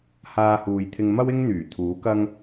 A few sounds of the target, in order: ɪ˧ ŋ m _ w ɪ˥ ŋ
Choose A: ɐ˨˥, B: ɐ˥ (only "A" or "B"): B